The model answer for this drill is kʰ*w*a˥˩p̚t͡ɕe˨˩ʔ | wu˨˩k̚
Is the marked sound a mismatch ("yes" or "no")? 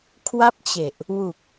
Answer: no